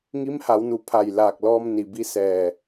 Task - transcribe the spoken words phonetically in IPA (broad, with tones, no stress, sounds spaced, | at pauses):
ŋ i˧˥ m h a˩˧ w n u˩˧ pʰ a˧˩ j l aː˧˩ k̚ l ɔː˧ m n i˩ b i˧˥ s ɛː˧˩